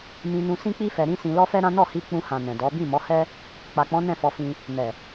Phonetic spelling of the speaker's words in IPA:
m ĩ˧ n ũ˧ s ĩ˦ k͡p i˦ f ɛ˧ ɾ ĩ˦ s ĩ˧ l ɔ˦ f ɛ˦ ɾ ã˦ n ɔ˦˨ h i˧ k͡p ũ˧ h ã˨ n ɛ̃˨ d ɔ˨˦ b ĩ˦˨ m ɔ˨˦ h ɛ˦ | k͡p a˨ k͡p ɔ̃˨˦ n ɛ̃˦˨ f ɔ˧ f ĩ˧ | n ɛ˨

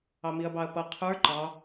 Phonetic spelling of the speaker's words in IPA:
ɑ m i ɐ̯ b ɑ ɐ̯ p ʌ qʰ ə˞ ǃ ɑ

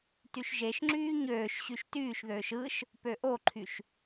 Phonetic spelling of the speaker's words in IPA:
t y ʃ ʒ e ʃ ŋ͡ǁ yː ɲ øː ʃ ɕ y ʃ t yː ʃ ð øː ʃ ɯ ʃ | p ø ʔ o ǃʰ y ʃ

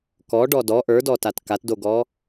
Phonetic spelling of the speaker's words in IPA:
k ɔ ɖ ɔ d ɔ ʔ ə˞ d ɔ t a t k a t d o ɡ ɔ

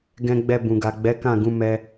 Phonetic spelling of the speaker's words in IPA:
ɡ ɛ̃˦ ɡ͡b ɛ˧ b ũ˨ ɡ a˨ ɡ͡b ɛ˨˦ k ã˦˨ ɡ ũ˨˦ m ɛ˦

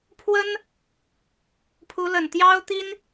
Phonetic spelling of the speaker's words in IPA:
pʰ w ə˥ n | pʰ u˧˥ l ə˨˩ n t̪ j ɑ˥ ʊ̯ t̪ i˥ n

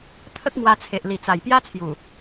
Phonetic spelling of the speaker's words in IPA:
t̪ʰ ə˦ k̚ ŋ w a˧ t͡sʰ e˨ ʔ l i˨˩ t͡s a˨˩ j p j a˦ t͡sʰ j u˨˩

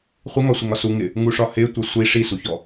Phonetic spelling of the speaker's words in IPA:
χʷ ɪ ŋ ɒ sʷ ɪ ŋ ɒ s u ŋ ɪ | ŋ u ʂ ɒ h ɪ tʷ ʌ sʷ i ʂ i s u ç ɔ

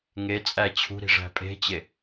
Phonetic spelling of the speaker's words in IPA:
ŋ e t͡sʼ æ t͡ɕʰ ṳ ɾ i̤ ʐ æ̤ pʼ e̤ t͡ɕ e

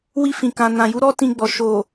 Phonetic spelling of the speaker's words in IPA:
w i˧ f ĩ˨ k ã˨ n ã˨ j u˨˦ ɾ ɔ˦ t ĩ˧ ɡ͡b ɔ˨ ʃ o˨

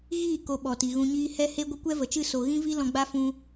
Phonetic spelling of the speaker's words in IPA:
ɣ iː˦˨ k o˧ ɓ ɔ˨ t i˨ ɣ ũ˧ ɲ iː˦ h ɛ˦ h e˦ ɡʷ ə˦ kʷ ɛ˦ v ə˨ t͡ʃ ɨ˦˨ s o˨ ɣ ĩ˦ v i˦ l ɔ̃˧ ɡ͡b a˦ f ũ˦

